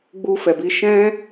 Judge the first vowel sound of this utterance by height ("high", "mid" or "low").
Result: high